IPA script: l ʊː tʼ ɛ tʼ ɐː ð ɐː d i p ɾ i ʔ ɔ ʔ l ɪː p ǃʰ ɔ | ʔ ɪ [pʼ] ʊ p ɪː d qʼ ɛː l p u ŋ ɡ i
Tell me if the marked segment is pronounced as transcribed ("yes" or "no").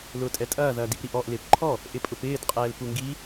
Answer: yes